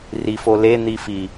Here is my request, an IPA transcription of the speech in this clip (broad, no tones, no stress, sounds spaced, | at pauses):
r i f o l e n̪ i f i